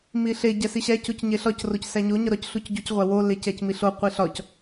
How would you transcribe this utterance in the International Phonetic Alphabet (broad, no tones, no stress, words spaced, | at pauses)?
miɬe ɟæsiɕæ cocɲeɬɒc rocsæɲo ɲɒɾɒc ɬucɟuc ʁʷæwo lecæcmiɬo qʷiɬɒc